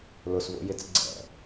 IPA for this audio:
l ʊ s v o̰ j ɪ t͡s ɡ͡ǀ ɛ̰

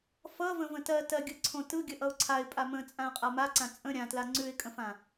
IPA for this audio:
f ʌ v ə̃ v ə̃ t ɜ t ɜ ɡʲ ɯ ǀʰ õ t ɯ ɡʲ ə ʔ ʌ ʊ̯ ǀʰ a ɪ̯ pʼ a m ə̃ t͡sʼ ã ə̯ qʼ a m a ǀ ã t͡sʼ ə̃ ɾʲ ã t l a ŋ͡ǀ ʉ ɪ̯ kʼ ə̃ f ã

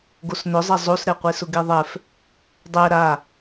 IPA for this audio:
ɡ o s n ʊ zˤ ɛ zˤ o s ɾ ɛ qʷ e s ʊ ɡ e ðˤ ɛ f | dˤ ɛ ɾ a

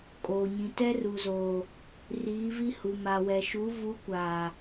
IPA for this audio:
kʼ oː˨ ɲ ĩ˨ t ɛ˦ r u˨ z oː˨ | r iː˨˦ v i˦ h u˨ m a˨ w ɛ˨ ʃ u˨˦ v u˨˦ kʷ aː˨

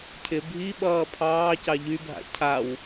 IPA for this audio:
cʰ ɪ bʱ i ɓ ʌː pʰ ɑː c ɑ ʎ y bʱ a̰ cʰ a w

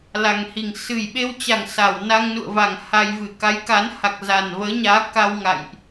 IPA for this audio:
l a˨˩ ŋ h i˨˩ ŋ s ɨ˨˩ j ɓ e˧ w t͡ɕ a˨˩ ŋ s a˧˩ w n a˧ ŋ n ṵ˧˨ ə̯ v a˧˩ ŋ h a˧ j v ɨ˧˩ k a˨˦ j k a˨˦ n h a˨˩ k̚ z a˨˩ n v əː˨˦ ɲ aː˨˦ k a˧ w ŋ a̰˧˨ j ʔ

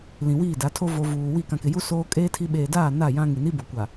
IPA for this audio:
l ĩ˨ w iː˦˨ d a˨˦ tʰ o˦ v o˨ v uː˨ w i˦˨ k ã˨ k ɪ˨ j u˦ s oː˦ kʼ eː˦ tʰ i˦ ɓ eː˨ d aː˦˨ n a˦˨ j ã˦ ŋ i˨ n i˦ b o˨ kʷ a˨

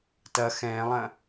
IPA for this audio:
t ɐ x ɛ̃ː lˠ ɐ̃

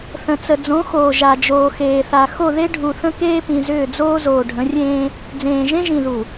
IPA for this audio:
θ ə̃˨ t͡s ə˨ d͡z õ˨˦ x oː˨ ʒ a˨ d͡ʒ oː˨ x eː˨ θ a˨ x o˦˨ ð e˦ ɖʱ u˨ θ ə̃˦ k eː˦ p ĩ˨ z ʏː˦˨ d͡z oː˦ z oː˨ ɖʱ ə̃˨˦ rʲ ẽː˦ | d͡z ẽː˨ ʒ ẽ˦ ʒ ĩ˨ ð u˨

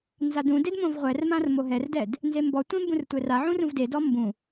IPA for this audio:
n z a d ũ d e d m õ v ʁʷ ɛ r m ã r m o ɦ ɛ r d ɛ d | n z e m b ɔ tʷ ẽ m b ũ r tʷ ɛ r a ʕ ũ r ũ v d e d ɔ m b ũ

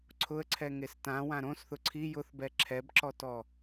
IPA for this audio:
ǀʰ ʊ ə̯ ǀʰ ɛ ŋ e s t ã w ã ɾ õ s θ ʊ ǀʰ i j ʊ θ b ɛ ǁʰ ɛ b ǁ ɔ t ɔ

